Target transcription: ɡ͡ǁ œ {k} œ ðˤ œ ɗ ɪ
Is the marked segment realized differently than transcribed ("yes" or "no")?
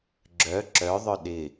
yes